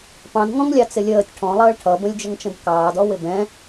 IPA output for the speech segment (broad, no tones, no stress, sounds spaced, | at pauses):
p ɑ̃ d ŋ ɔ̃ ŋ lʲ ɑ t͡s ɪ lʲ əː tʲ ʈʰ ɔ̃ lˠ əː ɭ ʈʰ ʌ b ə̃ lʲ d͡ʒ ə ŋ t͡ʃ ə̃ d k ɑː d ɔ w ɪ b ɛ̃